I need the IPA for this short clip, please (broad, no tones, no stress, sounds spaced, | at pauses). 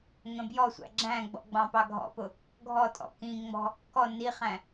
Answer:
ŋ ə̃ b j ɔ sʷ æ̰ ɡ͡ǁ æ̃ ɡ͡b ɔ̰ ɡ͡b ɑ̃ p ɑ ɡʱ ɔ̰ p ʊ | ɡʱ ɔ tʼ ɔ̰ k ĩ ŋ͡m ɔ̤ | k ɔ n i χ æ̃